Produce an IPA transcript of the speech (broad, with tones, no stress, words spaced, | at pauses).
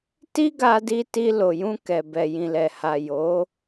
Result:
ti˦ɡa˧di˧ ti˧lo˨jũ˧ kɛ˨bɛ˨jĩ˨lɛ˨ ha˨ jo˨˦